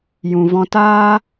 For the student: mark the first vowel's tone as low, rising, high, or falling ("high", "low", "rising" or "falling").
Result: low